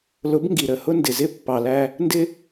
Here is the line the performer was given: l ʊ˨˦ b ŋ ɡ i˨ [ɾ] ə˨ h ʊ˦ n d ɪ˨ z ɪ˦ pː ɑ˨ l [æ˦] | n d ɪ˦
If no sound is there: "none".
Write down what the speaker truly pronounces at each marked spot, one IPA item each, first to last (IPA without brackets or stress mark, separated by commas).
ɾ, æ˦